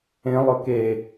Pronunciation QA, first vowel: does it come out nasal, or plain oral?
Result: nasal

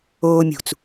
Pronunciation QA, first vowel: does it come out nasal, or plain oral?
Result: oral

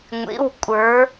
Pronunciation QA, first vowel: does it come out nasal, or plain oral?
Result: oral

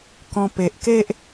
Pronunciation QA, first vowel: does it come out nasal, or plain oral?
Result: nasal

